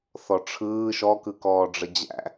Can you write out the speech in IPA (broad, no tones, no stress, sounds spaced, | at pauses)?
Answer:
θ ɔ ʈ͡ʂʰ ɯː ʃ ɔ k ɯ k ɔː ɖ͡ʐ ə d͡ʑ æ̰